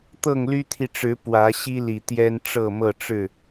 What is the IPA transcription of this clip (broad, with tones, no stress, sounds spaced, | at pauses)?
t̪ ɤ˥˨ ŋ l y˦ t̪ʰ i˨ ʈ͡ʂ ɻ̩˨˦ p w ä˨˦ ɕ i˦ l i˨˩ t̪ j ɛ˦ n ʈ͡ʂ ɤ˥˨ m ɤ˥˨ ʈ͡ʂ ɻ̩˥˨